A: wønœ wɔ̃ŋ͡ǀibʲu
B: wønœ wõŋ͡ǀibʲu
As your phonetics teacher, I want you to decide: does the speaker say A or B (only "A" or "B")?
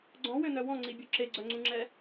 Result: A